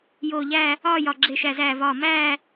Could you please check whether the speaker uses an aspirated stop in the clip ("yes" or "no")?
no